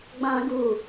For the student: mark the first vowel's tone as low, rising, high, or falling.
high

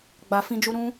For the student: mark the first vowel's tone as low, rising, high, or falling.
low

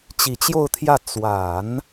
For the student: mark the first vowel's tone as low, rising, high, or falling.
low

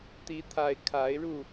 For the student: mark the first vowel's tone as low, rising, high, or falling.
rising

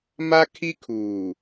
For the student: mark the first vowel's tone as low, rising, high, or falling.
high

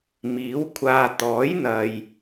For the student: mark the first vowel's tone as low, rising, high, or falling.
rising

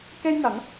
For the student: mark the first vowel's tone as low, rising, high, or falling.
high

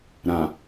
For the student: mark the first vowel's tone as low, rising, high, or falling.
low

